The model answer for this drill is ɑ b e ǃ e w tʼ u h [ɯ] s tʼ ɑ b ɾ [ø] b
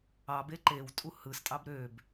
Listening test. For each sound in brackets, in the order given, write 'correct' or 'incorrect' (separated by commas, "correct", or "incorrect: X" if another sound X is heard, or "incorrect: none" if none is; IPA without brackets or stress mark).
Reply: correct, correct